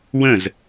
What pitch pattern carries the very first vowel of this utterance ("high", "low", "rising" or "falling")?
falling